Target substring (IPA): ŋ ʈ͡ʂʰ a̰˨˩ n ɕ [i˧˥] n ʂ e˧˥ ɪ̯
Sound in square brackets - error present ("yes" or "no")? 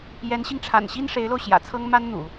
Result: yes